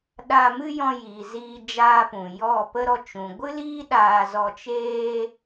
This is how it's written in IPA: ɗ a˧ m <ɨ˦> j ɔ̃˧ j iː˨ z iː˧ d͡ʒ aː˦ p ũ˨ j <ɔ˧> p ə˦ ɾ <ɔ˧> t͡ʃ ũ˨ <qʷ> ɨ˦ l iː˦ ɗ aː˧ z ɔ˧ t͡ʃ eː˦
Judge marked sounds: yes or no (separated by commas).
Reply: yes, no, yes, no